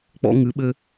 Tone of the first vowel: high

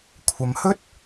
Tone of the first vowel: low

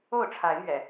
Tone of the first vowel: falling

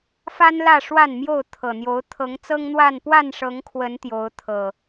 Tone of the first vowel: high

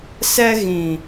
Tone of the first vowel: high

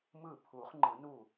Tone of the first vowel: falling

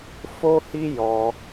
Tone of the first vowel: high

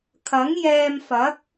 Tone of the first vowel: rising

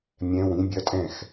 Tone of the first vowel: rising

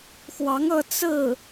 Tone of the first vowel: rising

